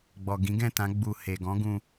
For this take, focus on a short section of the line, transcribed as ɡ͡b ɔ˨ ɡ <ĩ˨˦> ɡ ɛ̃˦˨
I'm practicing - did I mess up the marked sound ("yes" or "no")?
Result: no